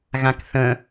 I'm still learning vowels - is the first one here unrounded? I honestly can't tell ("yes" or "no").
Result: yes